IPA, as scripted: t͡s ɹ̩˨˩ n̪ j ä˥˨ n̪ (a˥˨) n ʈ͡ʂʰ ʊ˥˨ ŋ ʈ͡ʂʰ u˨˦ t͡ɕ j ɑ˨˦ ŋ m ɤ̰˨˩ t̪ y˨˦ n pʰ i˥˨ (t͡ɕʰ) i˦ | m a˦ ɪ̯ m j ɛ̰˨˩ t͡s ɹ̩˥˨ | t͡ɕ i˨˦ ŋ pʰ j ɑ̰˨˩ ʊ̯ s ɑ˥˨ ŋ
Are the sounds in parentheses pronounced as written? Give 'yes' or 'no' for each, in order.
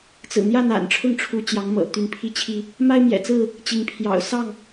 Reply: no, yes

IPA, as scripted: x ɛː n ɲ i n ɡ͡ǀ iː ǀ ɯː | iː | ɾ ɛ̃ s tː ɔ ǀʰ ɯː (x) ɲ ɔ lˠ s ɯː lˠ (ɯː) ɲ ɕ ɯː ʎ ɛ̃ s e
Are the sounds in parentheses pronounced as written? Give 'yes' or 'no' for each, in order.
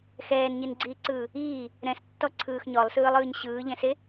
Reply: yes, yes

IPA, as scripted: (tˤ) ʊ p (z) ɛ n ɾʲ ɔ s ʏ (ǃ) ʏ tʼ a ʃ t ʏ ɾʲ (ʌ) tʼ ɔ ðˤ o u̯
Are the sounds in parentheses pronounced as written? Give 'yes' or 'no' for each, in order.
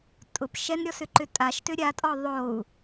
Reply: no, no, yes, no

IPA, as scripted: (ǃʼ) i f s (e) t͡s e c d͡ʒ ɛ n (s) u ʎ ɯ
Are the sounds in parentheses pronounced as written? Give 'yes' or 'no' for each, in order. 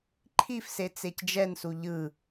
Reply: no, yes, yes

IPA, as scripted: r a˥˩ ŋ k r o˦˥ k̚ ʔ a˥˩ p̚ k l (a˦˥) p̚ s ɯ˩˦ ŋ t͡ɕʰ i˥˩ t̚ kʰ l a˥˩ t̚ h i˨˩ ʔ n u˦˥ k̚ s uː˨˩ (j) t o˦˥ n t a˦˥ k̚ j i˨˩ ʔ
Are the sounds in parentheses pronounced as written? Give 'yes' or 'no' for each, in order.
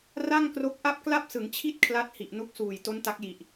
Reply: no, yes

